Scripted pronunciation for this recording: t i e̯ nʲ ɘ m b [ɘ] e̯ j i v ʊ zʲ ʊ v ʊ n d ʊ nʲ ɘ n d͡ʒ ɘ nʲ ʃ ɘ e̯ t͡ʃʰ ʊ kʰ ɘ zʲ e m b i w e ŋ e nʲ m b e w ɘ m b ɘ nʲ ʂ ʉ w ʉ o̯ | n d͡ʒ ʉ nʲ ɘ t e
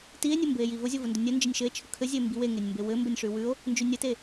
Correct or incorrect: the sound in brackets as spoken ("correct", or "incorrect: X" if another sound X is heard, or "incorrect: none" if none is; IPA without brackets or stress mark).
correct